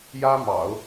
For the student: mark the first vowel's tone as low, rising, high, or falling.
high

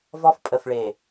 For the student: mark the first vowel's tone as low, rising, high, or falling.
high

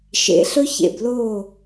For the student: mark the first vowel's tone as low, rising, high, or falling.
low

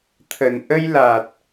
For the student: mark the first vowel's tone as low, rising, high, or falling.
low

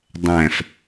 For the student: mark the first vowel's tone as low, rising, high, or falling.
low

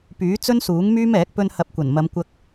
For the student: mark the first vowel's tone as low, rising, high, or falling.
rising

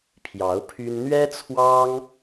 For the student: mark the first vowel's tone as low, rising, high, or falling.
rising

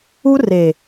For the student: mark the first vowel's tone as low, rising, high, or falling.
high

